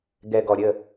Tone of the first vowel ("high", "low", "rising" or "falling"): low